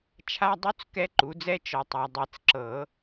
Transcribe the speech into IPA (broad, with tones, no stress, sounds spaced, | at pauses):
t͡ʃʰ a˧˥˧ dˤ u˦˥ t͡s k ɛ˦˥ ǃ u˩˥ d͡z ɛ˦˥ t͡ʃ ɔ˨ tˤ a˨ dˤ ɛ˨˩˦ t͡s ǁ ɤ˨˩˦